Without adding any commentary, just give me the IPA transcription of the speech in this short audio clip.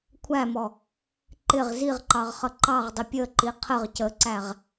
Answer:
kʷʰæmɔ | ǃɪʁ ziʁǃɑʁχʌ ǃɑʁdˤɪ pʲəǃi qʰəʁ cəǀæʁ

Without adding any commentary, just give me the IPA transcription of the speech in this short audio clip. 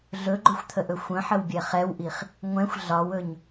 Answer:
ɮɵɡ͡ǃɵxʷt̪ʰəʔɵ xʷə̃ħəwbʲɛ χɛwʔiχ | ŋʷɛ̃xʷ ɮɒwɵɲ

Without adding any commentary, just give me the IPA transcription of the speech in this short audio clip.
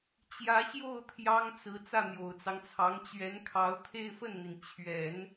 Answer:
t͡ɕjä˧˥ɕjo˥˩ʊ̯ t̪ʰjɑ˥ŋt͡sɹ̩˧˥ t͡sä˥˩n̪jo˨˩ʊ̯t͡sɑ˦ŋt͡sʰɑ˧˥ŋ t͡ɕɥɛ˧˥nkʰɑ˧˥ʊ̯ t̪ʰe˥˧ɪ̯fə˥˩nn̪i˩n t͡ɕʰɥɛ˨˩˦n

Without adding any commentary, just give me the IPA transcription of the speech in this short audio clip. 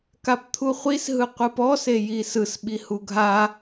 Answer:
kapt̪ʰuχʷis ɦɯqʷɯpɔ sejisɯs ɓihuɡʱa

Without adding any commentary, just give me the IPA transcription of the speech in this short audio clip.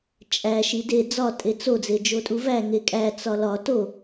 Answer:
t͡ʃʼæ ʃide d͡zɒ tʼet͡so d͡zed͡ʒotʼuvæ ŋekʼæ t͡sɒlɒ to

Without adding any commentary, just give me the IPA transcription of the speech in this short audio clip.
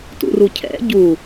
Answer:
tṵrucʰɛ̰ ɟu

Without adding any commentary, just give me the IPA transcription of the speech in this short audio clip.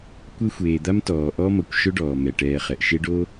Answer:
kʷe˦xʷeː˩d̪a˥m tɔː˩ʔɔ˥ mʌ˩kʷʃɵ˥ɖɔː˩ mɛ˩ʈɛː˨χɛ˩ʔ ʃe˦ɖoː˥

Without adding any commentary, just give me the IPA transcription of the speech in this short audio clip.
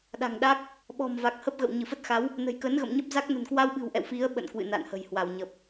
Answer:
ɗa̤˨˩ŋɗa˦˥k̚ | ɓɔ̤˨˩mva˨˩k̚ hə˦˥p̚ɣə̰˧˨w ɲɨ˧˩fə˦˥t̚xa˨˦w | nə̤˨˩jkə˨˦nɣə̰˧˨mɲə˦˥p̚ za˦˥k̚ nə̤˨˩nkwa˧wɓɨ̤˨˩wʔɛ̰˧˨w fi˨˦ə̯ ɓə̰˧˨n kwɨ̰˧˨na̰˧˨nhə̤˨˩j hwa˧˩wɲə˨˩p̚

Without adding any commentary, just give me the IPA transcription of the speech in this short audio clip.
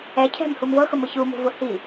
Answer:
ɛ cʰɛ̤mhum vɤxʊmʊ çumṳvʊ hi

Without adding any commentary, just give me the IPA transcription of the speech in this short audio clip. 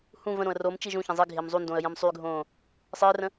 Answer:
hũ və̃ɾõə̯ rom t͡ʃiʒũçə̃ zˤi ɡʱɪːmzˤundõə̯ jə̃msˤyɡʱõː | sˤɪːrə̃

